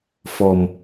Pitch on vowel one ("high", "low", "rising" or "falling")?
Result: low